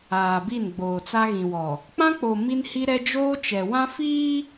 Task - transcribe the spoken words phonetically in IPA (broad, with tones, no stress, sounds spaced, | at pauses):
aː˨ b i˦˨ n ɡ͡b oː˨ t͡s a˦ ɣ ĩ˨ w ɔ˨ | k͡p ã˦ k͡p o˨ m i˦ n h i˦ ɾ ɛ˦ d͡ʒ oː˦ t͡ʃ ɛ˨ w ã˦ f iː˦